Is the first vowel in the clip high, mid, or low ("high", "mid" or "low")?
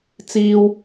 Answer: high